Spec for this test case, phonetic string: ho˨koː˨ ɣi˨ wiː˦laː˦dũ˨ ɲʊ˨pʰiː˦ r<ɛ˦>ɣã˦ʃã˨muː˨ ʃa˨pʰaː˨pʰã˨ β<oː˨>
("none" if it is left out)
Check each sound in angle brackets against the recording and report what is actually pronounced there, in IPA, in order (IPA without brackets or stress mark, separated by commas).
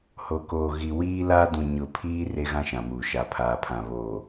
e˦, oː˨